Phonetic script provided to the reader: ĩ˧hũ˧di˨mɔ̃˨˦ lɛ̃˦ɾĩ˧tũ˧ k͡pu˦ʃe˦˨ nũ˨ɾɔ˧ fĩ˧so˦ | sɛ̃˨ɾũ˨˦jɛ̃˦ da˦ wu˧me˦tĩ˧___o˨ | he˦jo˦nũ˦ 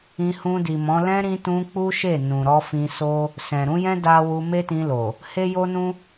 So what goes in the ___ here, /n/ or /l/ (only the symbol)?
l